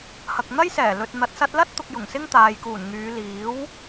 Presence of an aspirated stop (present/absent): absent